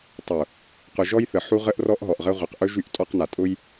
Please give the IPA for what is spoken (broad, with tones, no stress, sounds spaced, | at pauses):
tˤ ʊ˨ | q ʊ˨ ʒ ɔ˦ j θ ə˨ ħ u˦ ʁ ə˦ ʔ r ɔ˦ ʔ ɦ ɔ˨ ʔ ʁ ə˦ ʁʷ ə˨ q ʔ ɵ˦ ʒ y˦˨ ʔ tʼ ɔ˦ q n a˨ tʼ ʊ˦ j